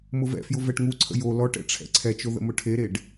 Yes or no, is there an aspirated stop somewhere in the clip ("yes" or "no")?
yes